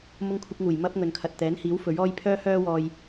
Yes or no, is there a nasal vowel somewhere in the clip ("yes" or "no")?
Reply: no